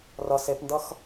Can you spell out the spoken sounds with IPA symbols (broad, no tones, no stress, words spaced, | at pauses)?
rʌ sepndʌx